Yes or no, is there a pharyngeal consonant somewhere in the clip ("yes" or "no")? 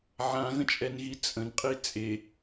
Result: yes